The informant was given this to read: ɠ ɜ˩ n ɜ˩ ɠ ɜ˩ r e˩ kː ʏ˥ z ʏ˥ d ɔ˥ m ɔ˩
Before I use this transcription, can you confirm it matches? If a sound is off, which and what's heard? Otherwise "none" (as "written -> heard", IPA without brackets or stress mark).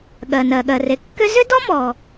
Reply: none